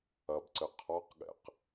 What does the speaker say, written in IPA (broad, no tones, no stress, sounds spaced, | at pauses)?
ɐ b ǀ ɘ qʰ ɔ q ɠ ɛ̰ q